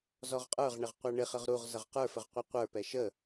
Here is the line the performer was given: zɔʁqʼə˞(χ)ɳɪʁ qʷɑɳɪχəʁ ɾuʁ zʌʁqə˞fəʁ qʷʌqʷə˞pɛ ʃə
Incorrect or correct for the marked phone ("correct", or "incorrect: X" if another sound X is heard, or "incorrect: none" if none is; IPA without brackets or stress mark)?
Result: incorrect: ʁ